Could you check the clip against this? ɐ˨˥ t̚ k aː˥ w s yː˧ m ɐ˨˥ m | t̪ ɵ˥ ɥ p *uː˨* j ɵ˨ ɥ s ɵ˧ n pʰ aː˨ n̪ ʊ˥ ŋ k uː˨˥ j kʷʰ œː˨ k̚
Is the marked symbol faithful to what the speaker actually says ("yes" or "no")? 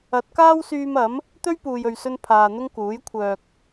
yes